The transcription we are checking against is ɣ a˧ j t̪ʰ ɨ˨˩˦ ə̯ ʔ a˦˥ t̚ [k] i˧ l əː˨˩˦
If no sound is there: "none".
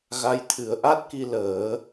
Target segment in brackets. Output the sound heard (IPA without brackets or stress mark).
k